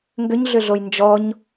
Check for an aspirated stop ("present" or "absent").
absent